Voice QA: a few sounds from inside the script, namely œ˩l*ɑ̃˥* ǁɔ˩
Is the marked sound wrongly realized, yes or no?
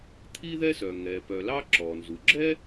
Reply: yes